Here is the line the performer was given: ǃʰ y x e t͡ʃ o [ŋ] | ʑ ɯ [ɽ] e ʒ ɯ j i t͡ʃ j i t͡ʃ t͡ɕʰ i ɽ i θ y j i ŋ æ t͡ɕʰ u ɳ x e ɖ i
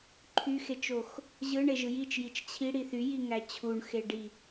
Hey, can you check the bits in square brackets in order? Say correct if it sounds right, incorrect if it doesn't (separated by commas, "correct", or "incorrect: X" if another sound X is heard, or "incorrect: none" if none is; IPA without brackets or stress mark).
incorrect: x, incorrect: ɳ